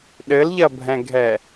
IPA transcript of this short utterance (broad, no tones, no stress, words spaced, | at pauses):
ɗɘlʎɐbʱɛ̃ɡʱɛ